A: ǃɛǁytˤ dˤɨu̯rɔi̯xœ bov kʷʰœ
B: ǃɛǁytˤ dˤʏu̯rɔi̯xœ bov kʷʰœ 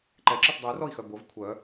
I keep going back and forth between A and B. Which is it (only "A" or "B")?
B